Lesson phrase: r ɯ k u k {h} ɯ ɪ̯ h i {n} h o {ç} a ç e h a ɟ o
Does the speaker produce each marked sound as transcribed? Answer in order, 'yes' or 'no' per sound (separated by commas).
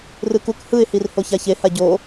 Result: yes, no, yes